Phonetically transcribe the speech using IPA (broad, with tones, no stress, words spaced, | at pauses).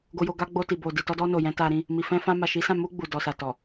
ɡo˧jo˧ ɡa˧ ɡ͡bo˧ti˨ bo˨ di˨tɔ˧dɔ˧ no˨ jɛ̃˨˦ta˧ɾĩ˧ | mi˨fɛ̃˧fã˧ ma˨ʃi˨˦sã˦˨ mu˧ ɡ͡bu˨ dɔ˨sa˨ tɔ˨